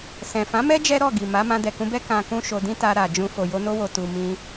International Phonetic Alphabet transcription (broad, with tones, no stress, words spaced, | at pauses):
sɛ̃˨fã˨˦mɛ˦ d͡ʒɛ˦ɾɔ˦˨ɡi˨ma˨˦ mã˧dɛ˨kũ˧bɛ˦ kã˧kũ˦ʃo˧ dĩ˦ta˧ɾa˨d͡ʒũ˧ fo˨jo˧no˧wo˨ tu˨ mĩ˧